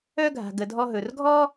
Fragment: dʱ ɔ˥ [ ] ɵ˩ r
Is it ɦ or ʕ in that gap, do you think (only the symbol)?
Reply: ɦ